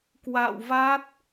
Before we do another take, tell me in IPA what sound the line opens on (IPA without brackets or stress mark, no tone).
k